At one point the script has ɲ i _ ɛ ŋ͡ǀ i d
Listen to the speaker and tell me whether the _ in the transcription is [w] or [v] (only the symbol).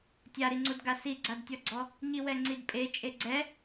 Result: w